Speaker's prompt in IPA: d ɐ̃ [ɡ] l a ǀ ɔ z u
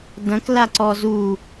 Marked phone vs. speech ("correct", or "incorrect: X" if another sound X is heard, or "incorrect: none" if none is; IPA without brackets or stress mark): incorrect: k